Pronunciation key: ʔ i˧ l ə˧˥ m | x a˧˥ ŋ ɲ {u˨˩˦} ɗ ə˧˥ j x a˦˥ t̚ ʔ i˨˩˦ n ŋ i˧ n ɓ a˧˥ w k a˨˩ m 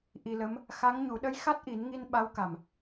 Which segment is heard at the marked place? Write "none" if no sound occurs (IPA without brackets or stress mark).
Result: u˨˩˦